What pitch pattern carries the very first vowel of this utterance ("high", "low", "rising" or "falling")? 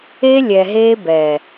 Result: high